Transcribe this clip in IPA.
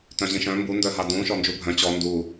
t œ̃ ʑ ĩ ʃ œ̃ m b u n d œ ɦ a d ũ ʃ ɔ n d͡ʒ u bʱ œ̃ t͡ɕ ɔ n d u

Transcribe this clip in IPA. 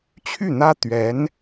t͡ɕʰ y˥˩ n̪ ä˥ t̪ ɥ ɛ˧˥ n

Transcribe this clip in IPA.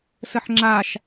s ə ħ ŋ͡ǁ a ʃ

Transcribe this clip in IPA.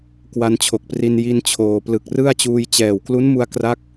k w a˧ n t͡ɕʰ o˨˩ k̚ p r i˧ n j i˥˩ n t͡ɕʰ oː˧ p l ɯ˨˩ k̚ r ɯ˥˩ a̯ t͡ɕ uː˧ j t͡ɕ ɛː˨˩ w k l u˦˥ n m u˧ a̯ k r a˦˥ k̚

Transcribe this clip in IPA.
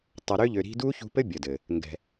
tˤ ʌ˨ ɾ ø˦ ʎ ø˨ ɾ i̤˦ d u˦ ç ṳ˧ p ɘ˦ bʲ ə˨ d ɘ˨ | ŋ ɡ ɛ̤˨

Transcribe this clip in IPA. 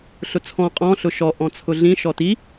ɬ ʊ t͡sʰ ɔ̃ qʼ ɔ̃ ɬ ʊ ʃ ɔ ʔ ɔ̃ t͡sʰ ʊ ɮ ĩ ʃ ɔ t i

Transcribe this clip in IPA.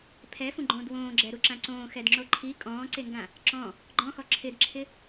pʰ ɛ f ũ ɡ͡ǃ õː d w õː ɡ͡ǁ ɛ ɾ u ǁ ã ǀ õː x ɛ d ŋ͡ǁ o ǃʰ i kʼ ɔ̃ː ǀ e ŋ ɡ ã | ǁ ɔ̃ | ɡ͡ǃ ɔ̃ x ɔ ǁʰ ɪ d ǁʰ ɪ

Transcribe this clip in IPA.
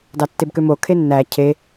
d ɑ tː e b k ø m o kʰ e nː æ cʰ e

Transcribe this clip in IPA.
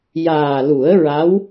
j aː˨˩ l u˨˩˦ ə̯ ɹ a˧˥ w

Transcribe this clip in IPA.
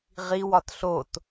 ʁ i w ɒ t ɬ o t

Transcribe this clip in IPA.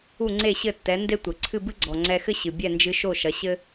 u˥˩ ŋ͡ǀ e˥˩ ɕ ɘ˥˩ tː ɛ˩˥ n d e˥ tʷ ɘ˩ ǀʰ ɨ˥˩ b ɨ˥ ɡ͡ǀ ɔ˩ ŋ͡ǀ ɛ˧ x ɘ˥ ɕ ɨ˩ bʲ ɛ˥˩ n d͡ʒ ɨ˧ ʃ o˥˩ ʃ ɐ˩˥ ɕ ɘ˥

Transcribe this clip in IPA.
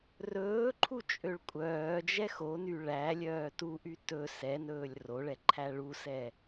r ɵː ǃʰ u t͡ʃʼ ø ɭ kʷʼ œː d͡ʒ ɛ x o n y ɭ æ lʲ œː t u ʔ y t ɵ s ɛ n ɵː lʲ r o ɭ ɛ ǃʰ æ ɭ u s ɛ

